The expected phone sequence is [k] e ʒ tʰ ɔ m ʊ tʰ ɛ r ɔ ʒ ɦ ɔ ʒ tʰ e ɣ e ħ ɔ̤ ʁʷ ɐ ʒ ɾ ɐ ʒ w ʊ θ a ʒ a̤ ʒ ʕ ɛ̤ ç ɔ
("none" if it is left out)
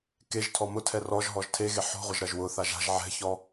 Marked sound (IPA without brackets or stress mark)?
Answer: k